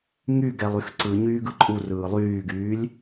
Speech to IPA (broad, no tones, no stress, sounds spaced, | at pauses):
ŋ y ɡ ɛ lˠ y x ǀ ɯ ɲ yː ɡ ɯ ǃʼ u r ɯː lˠ yː ɡ yː lʲ